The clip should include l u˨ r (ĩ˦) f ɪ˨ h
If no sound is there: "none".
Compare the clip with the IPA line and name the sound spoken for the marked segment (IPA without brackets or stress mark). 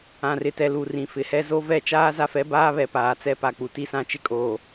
ĩ˨